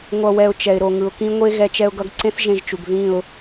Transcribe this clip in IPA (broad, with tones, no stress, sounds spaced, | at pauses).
ŋʷ ʌ˧ w ɛ˧ ʊ̯ t͡ʃ ɛ˨ ɪ̯ ɾ o˨ ŋ ɯ˨ ʊ̯ k ĩ˧ ŋʷ e˦ ɣ ɛ˦ t͡ʃ ɛ˦ ʊ̯ ɡ ʌ˦ ɡ ǀ ẽ˦ θ ʒ ẽ˧ ʒ t͡ʃ u˨ ɡ ð ĩ˦˨ ʊ̯